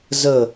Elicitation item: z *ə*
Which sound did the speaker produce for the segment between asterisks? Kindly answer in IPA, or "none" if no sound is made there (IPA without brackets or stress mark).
ə